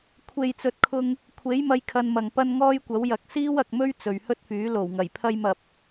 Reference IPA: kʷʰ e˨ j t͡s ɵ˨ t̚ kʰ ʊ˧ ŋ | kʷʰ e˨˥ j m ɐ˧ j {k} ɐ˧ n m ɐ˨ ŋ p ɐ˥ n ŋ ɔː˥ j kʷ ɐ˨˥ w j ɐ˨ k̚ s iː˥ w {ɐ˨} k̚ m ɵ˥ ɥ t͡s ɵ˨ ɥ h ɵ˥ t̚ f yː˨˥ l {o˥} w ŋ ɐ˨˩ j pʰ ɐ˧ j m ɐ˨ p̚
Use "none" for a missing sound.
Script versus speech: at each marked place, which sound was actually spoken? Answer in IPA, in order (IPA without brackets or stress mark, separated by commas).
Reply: kʰ, ɐ˨, o˨˩